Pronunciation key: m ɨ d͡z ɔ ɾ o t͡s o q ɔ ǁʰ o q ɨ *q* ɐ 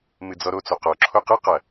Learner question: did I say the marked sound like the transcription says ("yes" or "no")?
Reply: yes